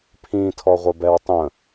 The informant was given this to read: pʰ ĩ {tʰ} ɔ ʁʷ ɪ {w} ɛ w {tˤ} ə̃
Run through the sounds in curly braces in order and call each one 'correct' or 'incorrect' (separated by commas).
correct, incorrect, correct